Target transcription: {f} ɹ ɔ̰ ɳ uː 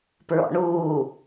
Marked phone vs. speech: incorrect: p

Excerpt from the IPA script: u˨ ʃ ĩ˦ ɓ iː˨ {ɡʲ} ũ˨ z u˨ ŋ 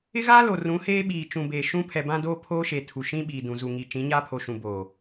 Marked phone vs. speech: incorrect: d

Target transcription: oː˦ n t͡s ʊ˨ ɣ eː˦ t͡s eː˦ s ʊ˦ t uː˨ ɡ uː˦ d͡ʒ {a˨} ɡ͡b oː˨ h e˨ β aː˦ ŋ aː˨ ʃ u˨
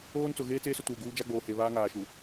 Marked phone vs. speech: incorrect: a˦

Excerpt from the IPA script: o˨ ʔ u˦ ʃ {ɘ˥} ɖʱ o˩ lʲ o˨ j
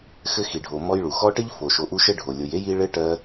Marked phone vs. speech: correct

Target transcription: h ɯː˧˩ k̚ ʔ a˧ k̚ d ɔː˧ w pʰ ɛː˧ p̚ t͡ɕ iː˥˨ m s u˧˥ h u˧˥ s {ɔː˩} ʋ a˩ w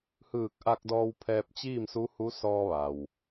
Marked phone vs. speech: incorrect: ɔː˧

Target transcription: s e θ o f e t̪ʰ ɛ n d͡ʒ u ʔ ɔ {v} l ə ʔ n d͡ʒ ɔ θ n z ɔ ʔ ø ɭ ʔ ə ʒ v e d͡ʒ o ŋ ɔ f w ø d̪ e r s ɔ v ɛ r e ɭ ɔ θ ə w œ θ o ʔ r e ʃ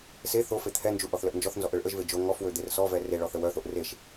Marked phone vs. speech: incorrect: θ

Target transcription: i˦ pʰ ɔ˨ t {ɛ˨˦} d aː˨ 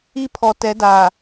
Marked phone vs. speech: correct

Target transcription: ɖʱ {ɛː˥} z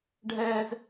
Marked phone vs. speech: correct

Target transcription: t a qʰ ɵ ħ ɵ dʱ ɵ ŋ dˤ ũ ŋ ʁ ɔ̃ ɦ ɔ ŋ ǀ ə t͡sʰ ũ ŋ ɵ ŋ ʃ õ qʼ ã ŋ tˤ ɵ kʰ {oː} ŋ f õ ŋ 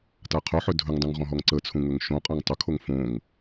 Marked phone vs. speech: incorrect: o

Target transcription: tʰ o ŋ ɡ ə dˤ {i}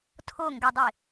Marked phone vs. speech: correct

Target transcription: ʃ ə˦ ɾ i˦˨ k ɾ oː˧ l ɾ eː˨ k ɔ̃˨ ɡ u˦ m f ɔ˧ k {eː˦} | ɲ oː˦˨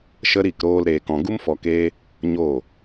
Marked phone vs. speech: correct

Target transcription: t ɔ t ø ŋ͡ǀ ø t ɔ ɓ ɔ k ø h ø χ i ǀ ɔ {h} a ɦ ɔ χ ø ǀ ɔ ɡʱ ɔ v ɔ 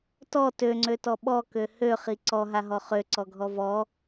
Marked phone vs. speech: incorrect: ɦ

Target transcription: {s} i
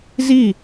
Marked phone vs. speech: incorrect: z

